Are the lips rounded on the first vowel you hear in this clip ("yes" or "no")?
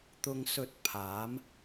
yes